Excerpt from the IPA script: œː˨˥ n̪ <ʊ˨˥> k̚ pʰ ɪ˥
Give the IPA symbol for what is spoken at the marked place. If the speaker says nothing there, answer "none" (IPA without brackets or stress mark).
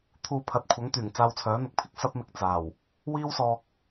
ʊ˨˥